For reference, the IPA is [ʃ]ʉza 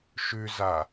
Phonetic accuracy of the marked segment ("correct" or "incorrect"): correct